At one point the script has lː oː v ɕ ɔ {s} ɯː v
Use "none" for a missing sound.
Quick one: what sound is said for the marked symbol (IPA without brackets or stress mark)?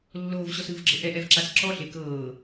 s